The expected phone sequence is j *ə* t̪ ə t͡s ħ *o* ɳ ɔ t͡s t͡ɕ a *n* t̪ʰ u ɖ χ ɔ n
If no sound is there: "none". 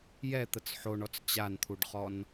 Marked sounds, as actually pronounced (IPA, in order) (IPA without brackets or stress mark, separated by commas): ɛ, o, n